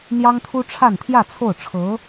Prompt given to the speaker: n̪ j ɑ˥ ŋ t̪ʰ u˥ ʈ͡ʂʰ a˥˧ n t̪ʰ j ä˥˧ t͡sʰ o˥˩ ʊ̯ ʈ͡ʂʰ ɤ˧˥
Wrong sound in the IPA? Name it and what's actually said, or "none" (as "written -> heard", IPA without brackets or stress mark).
none